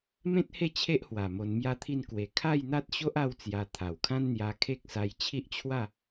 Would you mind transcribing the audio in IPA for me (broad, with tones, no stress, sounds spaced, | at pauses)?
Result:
m ẽ˦ t̚ h e˥˧ t͡ɕʰ e˦ ʔ h w a˨˩ m o˧ n m j a˦ t̪ʰ i˥˧ n k w e˨˩ kʰ a˥˧ j n̪ a˦ t̚ ɕ o˦ ʔ a˦ w t͡s j a˧ t̪ʰ a˨˩ w kʰ ã˦ n n̪ j a˧ kʰ e˦ k̚ s a˧ j t͡ɕʰ i˦ ʔ t͡ɕʰ w a˥˧